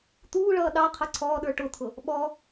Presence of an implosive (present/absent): present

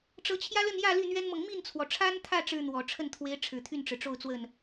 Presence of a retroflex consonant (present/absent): present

